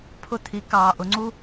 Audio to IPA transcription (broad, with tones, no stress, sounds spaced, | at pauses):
pʰ ʊ˧ t̪ʰ i˨˦ k ɑː˨ ʔ ʊ˨˦ ŋ͡ǀ u˦